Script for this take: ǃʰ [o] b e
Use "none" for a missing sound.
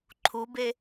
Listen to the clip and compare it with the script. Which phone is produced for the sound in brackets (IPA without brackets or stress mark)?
u